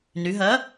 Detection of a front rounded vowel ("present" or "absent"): present